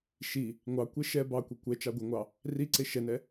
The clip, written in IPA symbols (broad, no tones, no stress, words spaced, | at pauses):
ʃi | ŋʷɑkʷe ʃɛ bɑkʷe kʷɛt͡ʃɑ ɡʷeŋʷɑ | riǀe ʃɛnɛ